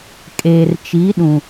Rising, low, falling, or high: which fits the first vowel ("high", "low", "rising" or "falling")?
low